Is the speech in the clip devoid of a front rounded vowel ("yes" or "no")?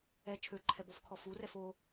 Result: no